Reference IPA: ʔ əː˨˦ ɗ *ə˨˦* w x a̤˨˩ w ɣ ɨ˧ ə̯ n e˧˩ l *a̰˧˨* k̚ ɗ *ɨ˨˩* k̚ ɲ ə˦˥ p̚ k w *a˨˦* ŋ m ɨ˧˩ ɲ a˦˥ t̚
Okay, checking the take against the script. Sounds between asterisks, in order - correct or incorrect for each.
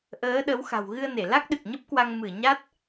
correct, incorrect, correct, incorrect

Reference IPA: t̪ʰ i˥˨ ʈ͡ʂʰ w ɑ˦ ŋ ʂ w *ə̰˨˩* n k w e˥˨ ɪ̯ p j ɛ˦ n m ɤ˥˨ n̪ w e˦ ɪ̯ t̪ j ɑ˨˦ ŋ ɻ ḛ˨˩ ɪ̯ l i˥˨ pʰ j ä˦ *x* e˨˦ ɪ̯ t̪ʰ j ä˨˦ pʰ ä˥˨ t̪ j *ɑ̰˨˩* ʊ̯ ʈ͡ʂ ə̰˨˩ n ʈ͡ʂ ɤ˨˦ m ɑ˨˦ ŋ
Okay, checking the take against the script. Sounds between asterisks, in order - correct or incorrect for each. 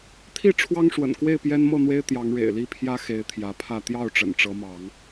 correct, correct, incorrect

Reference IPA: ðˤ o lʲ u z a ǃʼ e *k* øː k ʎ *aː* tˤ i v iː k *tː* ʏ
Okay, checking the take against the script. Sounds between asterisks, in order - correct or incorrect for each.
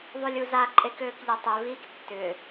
correct, incorrect, correct

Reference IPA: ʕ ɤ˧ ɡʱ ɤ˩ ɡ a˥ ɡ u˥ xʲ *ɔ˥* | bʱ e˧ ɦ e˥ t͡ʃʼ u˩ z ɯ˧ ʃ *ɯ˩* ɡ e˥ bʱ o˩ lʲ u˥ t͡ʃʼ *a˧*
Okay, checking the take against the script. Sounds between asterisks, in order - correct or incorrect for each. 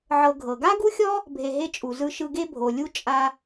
correct, incorrect, correct

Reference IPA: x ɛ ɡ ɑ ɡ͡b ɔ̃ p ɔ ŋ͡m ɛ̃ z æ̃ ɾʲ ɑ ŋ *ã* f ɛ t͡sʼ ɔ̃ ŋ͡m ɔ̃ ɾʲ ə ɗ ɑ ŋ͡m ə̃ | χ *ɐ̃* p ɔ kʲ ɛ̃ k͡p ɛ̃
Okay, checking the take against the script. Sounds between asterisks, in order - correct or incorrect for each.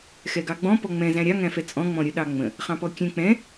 incorrect, incorrect

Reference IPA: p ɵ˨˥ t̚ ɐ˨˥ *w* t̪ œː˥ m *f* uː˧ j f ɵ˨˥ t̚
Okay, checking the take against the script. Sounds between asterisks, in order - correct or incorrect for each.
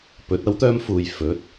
correct, correct

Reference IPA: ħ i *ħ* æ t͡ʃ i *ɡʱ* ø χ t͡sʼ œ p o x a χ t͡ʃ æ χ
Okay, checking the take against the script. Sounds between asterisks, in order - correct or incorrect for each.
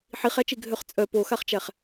incorrect, correct

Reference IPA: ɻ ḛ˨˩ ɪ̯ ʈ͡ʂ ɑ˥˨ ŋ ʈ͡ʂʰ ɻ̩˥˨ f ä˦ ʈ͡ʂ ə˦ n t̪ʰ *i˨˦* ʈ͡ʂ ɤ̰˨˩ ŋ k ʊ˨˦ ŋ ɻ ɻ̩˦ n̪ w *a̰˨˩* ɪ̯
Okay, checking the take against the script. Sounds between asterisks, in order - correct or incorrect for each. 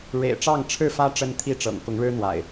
incorrect, correct

